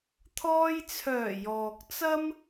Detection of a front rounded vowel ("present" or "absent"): present